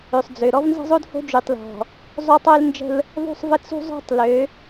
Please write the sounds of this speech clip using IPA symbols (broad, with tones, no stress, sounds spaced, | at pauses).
ø˨ sˤ d͡z ø˨ ɾ ɔ˦ v n z ə̤˦ zˤ o˦ d h o̤˦ d͡ʒ y˨ tˤ l ɔ̤˨ | zˤ o˦ tˤ ø˦ l n d͡ʒ ə̤˦ l | ðˤ ṳ˦˨ sˤ v ə˦ t͡s ṳ˦ zˤ o̤˦ tˤ l ø˨˦